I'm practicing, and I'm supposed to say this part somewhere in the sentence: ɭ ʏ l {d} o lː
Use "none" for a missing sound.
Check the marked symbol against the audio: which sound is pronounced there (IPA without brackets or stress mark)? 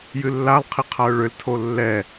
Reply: tʰ